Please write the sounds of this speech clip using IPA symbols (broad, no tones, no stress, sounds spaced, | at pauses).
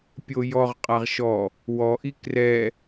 pʲ o j ɔ ʁ qʼ a ʁ ʃ ɔ | w ɔ ʔ i k r ɛ